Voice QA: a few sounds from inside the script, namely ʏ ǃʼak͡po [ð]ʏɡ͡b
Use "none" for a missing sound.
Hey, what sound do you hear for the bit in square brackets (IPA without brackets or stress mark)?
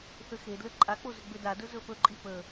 z